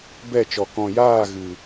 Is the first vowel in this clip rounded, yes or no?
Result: no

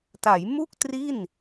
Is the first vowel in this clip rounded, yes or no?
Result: no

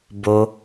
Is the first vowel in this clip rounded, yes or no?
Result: yes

